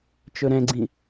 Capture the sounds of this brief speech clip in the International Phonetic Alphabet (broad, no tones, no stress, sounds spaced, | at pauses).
t͡ʃ ɵ ɾ ɛ̃ ɡ͡ǀ ĩ